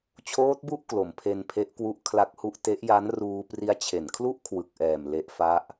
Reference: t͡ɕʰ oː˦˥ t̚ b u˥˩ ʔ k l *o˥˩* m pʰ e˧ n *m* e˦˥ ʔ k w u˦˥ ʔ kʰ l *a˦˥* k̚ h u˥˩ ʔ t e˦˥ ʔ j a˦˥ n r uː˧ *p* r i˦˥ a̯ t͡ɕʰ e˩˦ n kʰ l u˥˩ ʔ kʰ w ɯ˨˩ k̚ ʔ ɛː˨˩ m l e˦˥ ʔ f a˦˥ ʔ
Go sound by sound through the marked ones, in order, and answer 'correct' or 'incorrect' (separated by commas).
incorrect, incorrect, correct, correct